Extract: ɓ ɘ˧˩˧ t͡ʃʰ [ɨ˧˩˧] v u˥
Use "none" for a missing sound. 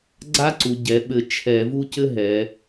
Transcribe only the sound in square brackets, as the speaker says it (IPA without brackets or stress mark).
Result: ɛ˧˩˧